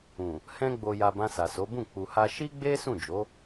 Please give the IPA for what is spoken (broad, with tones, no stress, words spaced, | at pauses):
ũ˨ | hɛ̃˧ɡ͡bo˨ja˨ bã˧sa˨so˨˦bũ˦˨ k͡pu˨ha˧ ʃi˦ɡ͡be˦ sũ˦˨d͡ʒo˨˦